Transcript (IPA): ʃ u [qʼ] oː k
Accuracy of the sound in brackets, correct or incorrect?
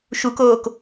incorrect